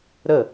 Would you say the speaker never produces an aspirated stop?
yes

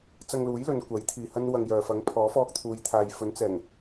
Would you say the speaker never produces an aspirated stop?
no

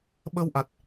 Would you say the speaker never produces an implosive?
no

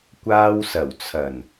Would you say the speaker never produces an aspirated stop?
no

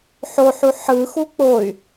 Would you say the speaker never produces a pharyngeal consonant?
no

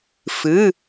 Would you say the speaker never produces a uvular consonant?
yes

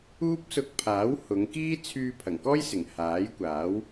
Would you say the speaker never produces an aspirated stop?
no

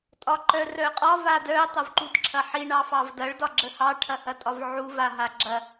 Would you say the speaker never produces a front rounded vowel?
no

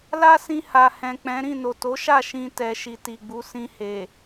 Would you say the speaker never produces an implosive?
yes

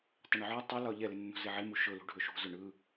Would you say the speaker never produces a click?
yes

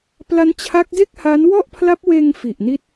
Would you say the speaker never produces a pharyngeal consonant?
yes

